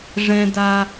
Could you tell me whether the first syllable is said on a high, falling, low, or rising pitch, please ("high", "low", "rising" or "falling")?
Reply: high